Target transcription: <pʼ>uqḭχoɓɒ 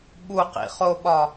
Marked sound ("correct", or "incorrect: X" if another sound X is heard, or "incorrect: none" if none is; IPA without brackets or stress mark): incorrect: ɓ